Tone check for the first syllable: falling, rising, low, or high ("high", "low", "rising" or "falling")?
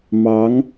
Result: rising